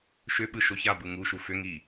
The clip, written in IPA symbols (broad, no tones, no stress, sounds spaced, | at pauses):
ʃ ʏ ɓ ɯ ʃ o ç a b ɯ ŋ u ʃ u f ʏ ŋ i